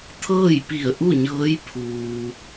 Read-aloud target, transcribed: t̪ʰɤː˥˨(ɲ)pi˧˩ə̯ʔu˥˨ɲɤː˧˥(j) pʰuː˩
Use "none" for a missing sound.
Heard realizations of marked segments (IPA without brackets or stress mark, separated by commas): j, j